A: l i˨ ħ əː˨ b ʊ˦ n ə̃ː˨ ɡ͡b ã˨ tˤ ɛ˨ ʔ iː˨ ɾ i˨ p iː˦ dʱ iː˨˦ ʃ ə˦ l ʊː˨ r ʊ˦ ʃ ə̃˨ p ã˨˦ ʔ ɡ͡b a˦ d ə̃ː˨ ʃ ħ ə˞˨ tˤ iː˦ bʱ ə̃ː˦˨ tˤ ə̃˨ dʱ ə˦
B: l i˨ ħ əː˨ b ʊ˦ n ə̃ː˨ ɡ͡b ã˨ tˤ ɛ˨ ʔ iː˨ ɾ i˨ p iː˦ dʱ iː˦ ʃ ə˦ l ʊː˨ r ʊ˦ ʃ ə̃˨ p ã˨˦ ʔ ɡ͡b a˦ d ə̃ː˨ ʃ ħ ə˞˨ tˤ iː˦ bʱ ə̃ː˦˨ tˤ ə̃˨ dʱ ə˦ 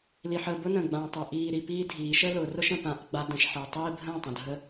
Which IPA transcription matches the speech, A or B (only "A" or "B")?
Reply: A